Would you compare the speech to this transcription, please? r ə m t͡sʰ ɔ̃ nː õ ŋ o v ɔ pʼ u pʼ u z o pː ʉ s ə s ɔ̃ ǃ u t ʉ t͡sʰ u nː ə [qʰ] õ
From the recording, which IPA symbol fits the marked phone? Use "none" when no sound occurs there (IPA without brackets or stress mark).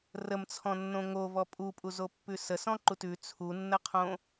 qʰ